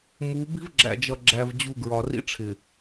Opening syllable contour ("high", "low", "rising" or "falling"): rising